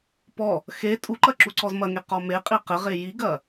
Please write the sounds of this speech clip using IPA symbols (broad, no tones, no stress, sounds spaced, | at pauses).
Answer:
p ɔ | x e tʼ u ǃ ɐ ǁ u ǀ ɔ z m ɐ ŋ e q ɔ m e qʼ i q ɘ ʁ e j i ɡ ɐ